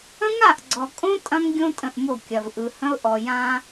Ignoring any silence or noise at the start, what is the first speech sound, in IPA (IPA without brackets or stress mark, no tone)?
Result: ə̃